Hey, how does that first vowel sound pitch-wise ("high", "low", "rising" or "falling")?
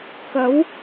rising